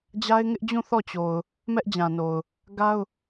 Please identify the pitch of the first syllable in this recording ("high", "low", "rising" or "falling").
high